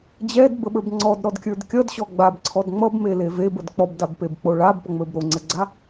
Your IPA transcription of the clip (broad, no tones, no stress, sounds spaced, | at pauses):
d͡ʑ ɛ d b ə ɓ ə˞ b ŋ͡ǀ ɔ d ɾ ɔ d kʲ ə˞ d kʲ ʌ d ɕ ɔ ɡ͡b a b ǀʰ ɔ d ŋ͡m ʌ b m e l e v e b ə d k͡p ɔ b d a b p e b k͡p o ɭ a b p ʌ ŋ͡m ə˞ b ɾ o ŋ͡ǀ ɛ ɡ͡ǀ a